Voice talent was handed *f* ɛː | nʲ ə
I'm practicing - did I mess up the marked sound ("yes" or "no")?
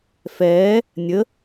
no